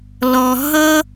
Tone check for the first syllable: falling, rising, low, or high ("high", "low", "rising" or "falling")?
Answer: low